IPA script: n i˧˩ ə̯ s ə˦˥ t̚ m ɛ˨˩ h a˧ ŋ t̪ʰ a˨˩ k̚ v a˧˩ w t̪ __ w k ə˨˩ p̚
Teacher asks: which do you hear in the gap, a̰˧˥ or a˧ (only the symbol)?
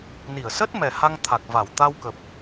a˧